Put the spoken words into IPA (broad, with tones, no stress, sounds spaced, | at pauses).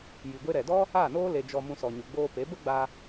j i˨ ɡʷ e˧ ɾ ɛ˨ d ɔ˦ | a˦˨ n oː˦ l e˧ d͡ʒ ɔ˧ m ũ˧ s ɔ˨ ɲ u˨ ɡ͡b oː˧ p e˨˦ b ə˦ ɡ͡b a˧